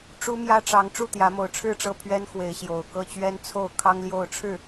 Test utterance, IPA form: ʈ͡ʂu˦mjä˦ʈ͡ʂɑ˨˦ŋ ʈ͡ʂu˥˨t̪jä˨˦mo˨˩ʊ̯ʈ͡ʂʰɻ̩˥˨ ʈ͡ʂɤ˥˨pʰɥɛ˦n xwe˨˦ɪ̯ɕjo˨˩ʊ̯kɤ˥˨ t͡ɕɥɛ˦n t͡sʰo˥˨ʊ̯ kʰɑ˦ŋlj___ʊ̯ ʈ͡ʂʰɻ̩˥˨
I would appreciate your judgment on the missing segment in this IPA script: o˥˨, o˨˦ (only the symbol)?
o˥˨